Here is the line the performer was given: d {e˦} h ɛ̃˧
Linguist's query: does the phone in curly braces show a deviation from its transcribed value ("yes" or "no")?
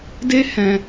no